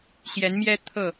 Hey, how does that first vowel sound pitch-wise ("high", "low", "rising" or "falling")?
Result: rising